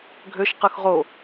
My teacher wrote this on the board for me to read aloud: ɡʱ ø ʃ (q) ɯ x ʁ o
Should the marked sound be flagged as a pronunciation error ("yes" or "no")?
no